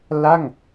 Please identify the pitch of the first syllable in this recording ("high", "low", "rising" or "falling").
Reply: falling